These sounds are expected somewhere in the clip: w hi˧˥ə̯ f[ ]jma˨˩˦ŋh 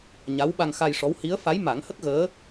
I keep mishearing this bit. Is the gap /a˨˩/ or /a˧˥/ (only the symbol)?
a˧˥